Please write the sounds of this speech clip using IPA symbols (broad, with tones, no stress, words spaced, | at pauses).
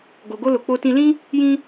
ɡo˨ɡo˧lo˨ k͡po˧tĩ˧lĩ˦ | jĩ˦